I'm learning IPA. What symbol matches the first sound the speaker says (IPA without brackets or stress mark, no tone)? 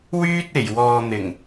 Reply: w